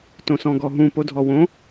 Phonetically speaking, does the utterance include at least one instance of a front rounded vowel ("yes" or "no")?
no